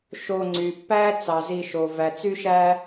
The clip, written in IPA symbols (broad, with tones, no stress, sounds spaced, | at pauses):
ʃ o˨ ŋ͡ǀ y˩ pː æ˦ t͡s ɑ˩ z i˨ ʃ o˩ v æ˩ t͡s y˥ ʃ æ˥